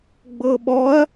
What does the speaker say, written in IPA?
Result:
ɡ͡b ɤ ɓ ɔ ɐ̯

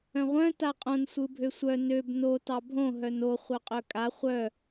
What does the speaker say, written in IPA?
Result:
œ̃ ʁʷ œ̃ t a qʼ õ n sʷ ɯ bʱ ø sʷ œ n ø b n o t ɑ bʱ õ ɦ œ n o χʷ œ qʼ œ kʼ a χʷ œ

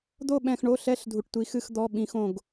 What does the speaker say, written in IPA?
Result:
d̪ o˥˧ ɓ ɛ̃˧ x ɳ o˧˥˧ ɬ ɛ˧˥˧ ɬ dʱ u˧ ʈ tʷ i˧˥ x ɨ˥˧ x d̪ ɔ˧˥˧ ɓ ĩ˧˥ x õ˥˧ ɡ

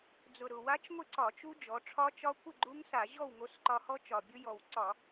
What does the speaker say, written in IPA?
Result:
d͡z ʊ˨˩ ɾ ʊ˨˩ w a˦˥ t͡ʃ ŋʷ ɪ˥˨ ǀ ɒ˧˩˧ t͡ʃ u˦˥ d͡ʒ ɔ˩˧ ʈ͡ʂʰ ɒ˦˥ t͡ʃ ɒ˦˥ kʷ ɪ˥˨ ɡ͡ǃ u˦˥ ŋ s a˧˩˧ ʑ ɔ˥˨ w ŋ o˧ s ǃ ɒ˧ h ɔ˦˥ t͡ʃ ɒ˨˩ bʲ ʊ˦˥ j ɔ˨˩ w ǀ ɒ˧˩˧

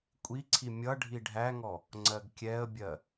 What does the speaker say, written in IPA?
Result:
kʷʼ i ǀʰ i mʲ ʌ ɖʱ i ɖʱ æ ŋ ɔ | ŋ͡ǀ ɜ ɡ kʲ ɛ ə̯ bʲ ɜ

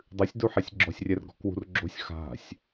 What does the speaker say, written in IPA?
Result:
dˤ ɨ sʲ d u ħ ɛ sʲ ɡ͡ǁ ɔ̤ sʲ rʲ ɛ r ɡ ɔ̤ k w ṳ r ɡ͡ǁ o̤ sʲ x a̤ sʲ

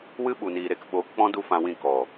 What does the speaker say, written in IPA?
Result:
w ɨ˦ ɓ u˨ n iː˨ ɾ e˧ k ɓ oː˨˦ k k͡p ɔ̃˦ d u˦ f ã˧ w ĩ˦˨ k ɔ˨

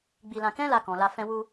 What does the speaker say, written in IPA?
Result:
ɡ͡b i˧ l ã˧ k ɛ̃˦ l a˧ k ɔ̃˨ l a˧ f ɛ̃˧ w u˧

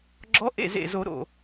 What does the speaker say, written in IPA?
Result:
ɡ͡ǁ ɔ˧˥ ʔ ḛ˥˩ z ḛ˧˩ z o˨˩˦ ɾ o̰˩

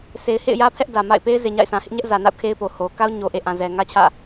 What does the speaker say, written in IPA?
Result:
sʰ e˨ ɪ̯ h ḛ˦˨ ɪ̯ j ä˦ pʰ ɛ˦ ʔ d ä˨ m a̰˦˨ ɪ̯ p e˦ ɪ̯ z e˨ ɲ a̰˦˨ ɪ̯ s ã˨ h ɪ˦ ʔ ɲ ɛ˦ ʔ z ä˨ n a̰˦˨ ʊ̯ kʰ e˦ ɪ̯ p o˨ h o˨ k a˦ ʊ̯ ɲ o˨ ʔ e˨ ʔ ã˨ z ɛ˨ ŋ ä˦ t͡ɕʰ ä̰˦˨

